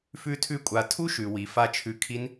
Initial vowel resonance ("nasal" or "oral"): oral